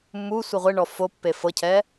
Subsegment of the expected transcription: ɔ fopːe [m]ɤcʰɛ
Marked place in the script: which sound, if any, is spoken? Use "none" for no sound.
f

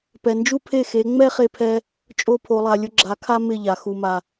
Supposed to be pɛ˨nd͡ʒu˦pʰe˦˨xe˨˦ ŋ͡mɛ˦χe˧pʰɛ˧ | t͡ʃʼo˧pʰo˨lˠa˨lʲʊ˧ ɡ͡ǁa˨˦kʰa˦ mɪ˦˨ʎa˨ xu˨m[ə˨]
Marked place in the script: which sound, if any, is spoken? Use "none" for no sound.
a˨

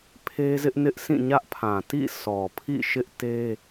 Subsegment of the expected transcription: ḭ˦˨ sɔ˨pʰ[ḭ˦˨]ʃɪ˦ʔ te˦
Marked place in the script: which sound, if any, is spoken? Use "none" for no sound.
ḭ˦˨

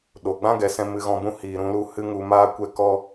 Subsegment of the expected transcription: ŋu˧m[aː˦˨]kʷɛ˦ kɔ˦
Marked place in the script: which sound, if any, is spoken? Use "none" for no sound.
aː˦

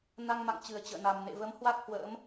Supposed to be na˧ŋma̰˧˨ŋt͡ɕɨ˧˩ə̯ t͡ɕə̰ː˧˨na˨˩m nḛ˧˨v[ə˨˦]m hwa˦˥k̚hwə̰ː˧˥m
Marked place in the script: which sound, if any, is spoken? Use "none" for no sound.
ə˨˦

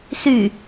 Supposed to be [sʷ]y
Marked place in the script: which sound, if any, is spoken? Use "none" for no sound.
s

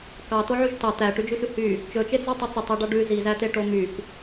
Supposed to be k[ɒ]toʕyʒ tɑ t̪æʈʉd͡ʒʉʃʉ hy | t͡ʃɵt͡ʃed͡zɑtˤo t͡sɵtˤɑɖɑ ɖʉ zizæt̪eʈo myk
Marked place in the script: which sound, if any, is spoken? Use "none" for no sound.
ɑ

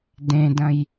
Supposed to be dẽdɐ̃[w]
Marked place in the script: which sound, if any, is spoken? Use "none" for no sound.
j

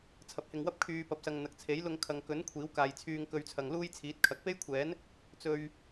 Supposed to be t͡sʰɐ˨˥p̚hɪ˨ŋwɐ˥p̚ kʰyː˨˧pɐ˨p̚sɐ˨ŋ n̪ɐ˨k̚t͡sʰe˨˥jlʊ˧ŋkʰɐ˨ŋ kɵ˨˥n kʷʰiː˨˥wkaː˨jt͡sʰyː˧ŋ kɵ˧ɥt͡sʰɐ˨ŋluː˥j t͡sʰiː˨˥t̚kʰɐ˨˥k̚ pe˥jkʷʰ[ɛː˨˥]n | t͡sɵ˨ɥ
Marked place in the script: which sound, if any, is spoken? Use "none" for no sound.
ɛː˨˥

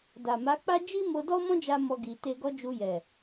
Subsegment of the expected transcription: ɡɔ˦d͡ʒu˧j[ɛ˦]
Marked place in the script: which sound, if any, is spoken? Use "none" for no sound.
ɛ˨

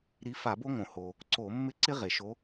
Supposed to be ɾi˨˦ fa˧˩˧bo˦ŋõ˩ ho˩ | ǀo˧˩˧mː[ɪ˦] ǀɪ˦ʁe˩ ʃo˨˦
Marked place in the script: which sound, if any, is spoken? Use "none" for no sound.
ɪ˦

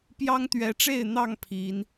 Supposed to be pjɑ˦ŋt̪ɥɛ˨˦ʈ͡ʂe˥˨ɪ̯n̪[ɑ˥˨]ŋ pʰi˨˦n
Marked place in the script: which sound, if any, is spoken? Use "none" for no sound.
ɑ˥˨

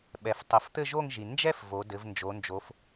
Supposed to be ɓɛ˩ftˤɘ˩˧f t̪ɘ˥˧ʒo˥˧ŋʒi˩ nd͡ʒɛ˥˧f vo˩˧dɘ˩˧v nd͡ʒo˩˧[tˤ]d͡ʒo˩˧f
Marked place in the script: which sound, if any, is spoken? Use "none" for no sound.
n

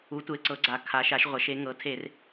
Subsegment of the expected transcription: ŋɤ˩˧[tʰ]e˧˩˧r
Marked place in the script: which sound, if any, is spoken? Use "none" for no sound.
tʰ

